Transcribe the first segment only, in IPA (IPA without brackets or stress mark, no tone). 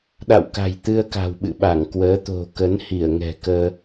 ɗ